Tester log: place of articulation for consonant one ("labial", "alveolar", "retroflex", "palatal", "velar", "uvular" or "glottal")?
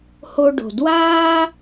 glottal